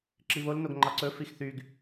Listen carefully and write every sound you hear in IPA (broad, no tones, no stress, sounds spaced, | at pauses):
ǁ i β o l n o ɡ ŋ͡ǃ ɑ ǀ ɵ f i x θ y ɡ